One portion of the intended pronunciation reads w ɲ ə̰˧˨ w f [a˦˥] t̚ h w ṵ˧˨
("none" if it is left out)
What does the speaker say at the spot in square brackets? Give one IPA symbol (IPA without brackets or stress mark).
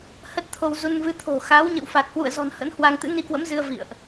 a˨˩